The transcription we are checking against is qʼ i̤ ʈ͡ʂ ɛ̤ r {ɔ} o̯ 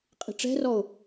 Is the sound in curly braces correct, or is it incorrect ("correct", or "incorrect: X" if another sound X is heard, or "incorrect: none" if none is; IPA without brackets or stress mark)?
correct